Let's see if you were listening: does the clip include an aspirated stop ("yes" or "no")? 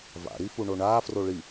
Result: no